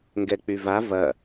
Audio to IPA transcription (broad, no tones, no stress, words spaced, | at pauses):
ŋɡɛk͡pyva vɐ